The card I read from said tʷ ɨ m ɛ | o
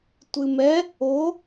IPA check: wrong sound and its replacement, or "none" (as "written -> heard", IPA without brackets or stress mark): none